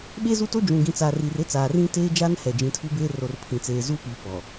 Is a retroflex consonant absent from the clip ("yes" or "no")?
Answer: yes